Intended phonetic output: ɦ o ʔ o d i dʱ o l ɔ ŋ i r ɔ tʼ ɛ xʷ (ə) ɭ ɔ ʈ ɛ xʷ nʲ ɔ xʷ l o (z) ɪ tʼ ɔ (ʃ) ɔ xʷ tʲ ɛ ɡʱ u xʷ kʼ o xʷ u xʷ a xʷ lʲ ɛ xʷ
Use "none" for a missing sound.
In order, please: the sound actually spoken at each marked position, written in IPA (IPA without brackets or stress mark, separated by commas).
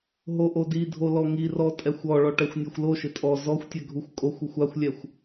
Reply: ɔ, ʃ, z